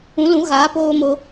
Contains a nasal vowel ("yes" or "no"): yes